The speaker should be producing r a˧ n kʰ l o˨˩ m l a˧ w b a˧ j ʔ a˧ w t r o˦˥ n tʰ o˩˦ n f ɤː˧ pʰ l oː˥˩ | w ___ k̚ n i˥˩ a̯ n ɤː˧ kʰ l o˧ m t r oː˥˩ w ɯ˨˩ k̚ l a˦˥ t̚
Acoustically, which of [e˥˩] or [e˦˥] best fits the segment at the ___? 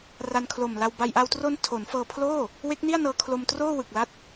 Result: e˦˥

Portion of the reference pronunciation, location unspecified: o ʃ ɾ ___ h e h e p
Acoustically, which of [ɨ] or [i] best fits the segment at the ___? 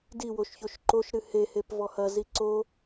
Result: ɨ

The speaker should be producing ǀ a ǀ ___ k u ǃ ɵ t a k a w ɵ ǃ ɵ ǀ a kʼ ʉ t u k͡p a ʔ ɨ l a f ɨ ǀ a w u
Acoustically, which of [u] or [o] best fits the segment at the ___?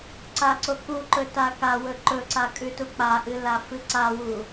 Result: o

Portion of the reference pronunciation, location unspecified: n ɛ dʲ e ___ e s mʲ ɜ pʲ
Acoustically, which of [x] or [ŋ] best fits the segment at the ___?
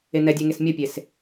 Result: ŋ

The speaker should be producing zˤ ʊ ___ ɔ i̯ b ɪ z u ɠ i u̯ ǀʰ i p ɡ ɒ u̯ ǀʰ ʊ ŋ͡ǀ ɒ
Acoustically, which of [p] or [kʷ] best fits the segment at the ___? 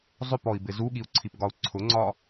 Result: p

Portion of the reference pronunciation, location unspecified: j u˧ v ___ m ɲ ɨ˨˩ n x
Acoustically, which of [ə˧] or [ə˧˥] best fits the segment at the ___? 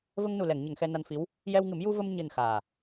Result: ə˧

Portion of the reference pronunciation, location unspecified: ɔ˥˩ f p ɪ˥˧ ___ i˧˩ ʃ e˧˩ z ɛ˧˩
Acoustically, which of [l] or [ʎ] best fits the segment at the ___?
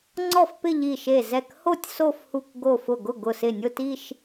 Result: ʎ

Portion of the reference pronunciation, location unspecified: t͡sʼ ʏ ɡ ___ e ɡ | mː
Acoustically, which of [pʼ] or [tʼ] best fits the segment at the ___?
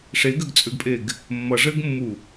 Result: pʼ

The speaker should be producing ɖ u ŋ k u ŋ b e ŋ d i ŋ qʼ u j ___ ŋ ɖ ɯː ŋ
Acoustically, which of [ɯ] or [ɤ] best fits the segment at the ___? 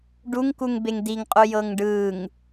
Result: ɤ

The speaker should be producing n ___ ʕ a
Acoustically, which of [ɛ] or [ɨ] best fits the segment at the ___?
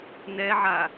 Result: ɛ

